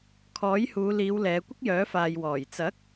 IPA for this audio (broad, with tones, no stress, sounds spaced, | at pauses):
kʰ ɔː˨˥ j h uː˨˧ l iː˨˧ w l ɛː˨˧ kʷ ɪ˥ k̚ j œː˨˥ f aː˨ j w ɔː˨˩ j t͡s ɐ˨˥ k̚